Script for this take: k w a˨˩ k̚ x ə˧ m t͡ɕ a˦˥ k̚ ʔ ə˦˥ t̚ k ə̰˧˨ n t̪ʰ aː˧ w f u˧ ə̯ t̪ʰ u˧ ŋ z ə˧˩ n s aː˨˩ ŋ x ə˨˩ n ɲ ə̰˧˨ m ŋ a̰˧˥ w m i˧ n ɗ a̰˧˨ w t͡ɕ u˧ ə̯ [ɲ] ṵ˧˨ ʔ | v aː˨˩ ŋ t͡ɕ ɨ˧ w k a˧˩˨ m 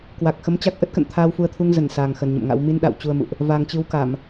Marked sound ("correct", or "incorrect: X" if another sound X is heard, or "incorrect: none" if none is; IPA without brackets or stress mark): incorrect: m